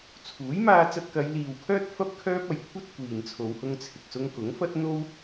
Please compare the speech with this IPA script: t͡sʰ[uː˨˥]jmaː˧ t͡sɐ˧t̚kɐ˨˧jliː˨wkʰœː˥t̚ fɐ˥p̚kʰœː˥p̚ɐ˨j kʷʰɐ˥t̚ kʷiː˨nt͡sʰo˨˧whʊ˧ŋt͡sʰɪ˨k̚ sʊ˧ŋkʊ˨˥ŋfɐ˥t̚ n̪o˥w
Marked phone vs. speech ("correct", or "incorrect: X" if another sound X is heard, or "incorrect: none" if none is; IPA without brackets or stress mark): correct